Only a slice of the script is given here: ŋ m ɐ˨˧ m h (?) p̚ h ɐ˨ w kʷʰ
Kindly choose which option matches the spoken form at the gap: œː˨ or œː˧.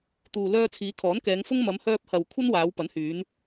œː˧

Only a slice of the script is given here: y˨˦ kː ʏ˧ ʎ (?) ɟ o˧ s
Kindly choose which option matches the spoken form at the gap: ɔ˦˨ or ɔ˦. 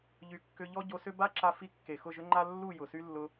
ɔ˦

